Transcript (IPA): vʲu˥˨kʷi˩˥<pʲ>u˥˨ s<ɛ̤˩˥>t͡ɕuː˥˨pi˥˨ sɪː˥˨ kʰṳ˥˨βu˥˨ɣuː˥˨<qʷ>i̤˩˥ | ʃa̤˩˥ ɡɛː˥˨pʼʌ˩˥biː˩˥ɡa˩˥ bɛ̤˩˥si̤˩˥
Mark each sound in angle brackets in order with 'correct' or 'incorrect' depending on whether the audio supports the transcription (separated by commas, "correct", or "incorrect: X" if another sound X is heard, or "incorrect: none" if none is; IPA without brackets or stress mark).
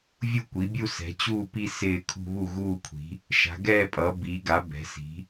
incorrect: bʲ, correct, incorrect: kʷʰ